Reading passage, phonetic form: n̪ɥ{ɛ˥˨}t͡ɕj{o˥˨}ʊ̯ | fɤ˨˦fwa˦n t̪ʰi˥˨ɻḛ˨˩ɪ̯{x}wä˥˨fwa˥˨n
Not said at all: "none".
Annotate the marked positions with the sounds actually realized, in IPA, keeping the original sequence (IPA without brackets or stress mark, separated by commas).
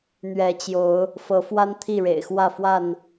ɛ˨˦, o˨˦, x